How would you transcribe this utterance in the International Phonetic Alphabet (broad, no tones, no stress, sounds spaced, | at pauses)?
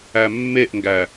æ mː e ʔ ŋ ɡ æ